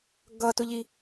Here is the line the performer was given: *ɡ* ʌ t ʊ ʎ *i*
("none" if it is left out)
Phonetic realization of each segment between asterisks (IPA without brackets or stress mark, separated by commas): ɡ, i